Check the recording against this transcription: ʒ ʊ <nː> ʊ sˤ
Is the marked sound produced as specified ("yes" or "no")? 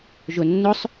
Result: yes